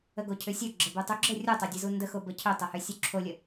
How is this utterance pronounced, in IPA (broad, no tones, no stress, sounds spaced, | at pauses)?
ə ɡ o cʰ ʏ sʲ o ɡ͡ǁ ə b u tˤ u ɡ͡ǁ ə rʲ u tˤ o dʲ ə z u n d ə x o b ə cʰ ʏ tˤ ə h ʏ sʲ u ǁʰ o lʲ ə